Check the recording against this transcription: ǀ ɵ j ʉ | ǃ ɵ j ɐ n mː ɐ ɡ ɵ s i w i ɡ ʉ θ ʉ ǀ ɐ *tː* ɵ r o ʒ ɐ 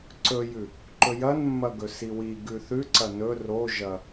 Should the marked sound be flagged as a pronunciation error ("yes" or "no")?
yes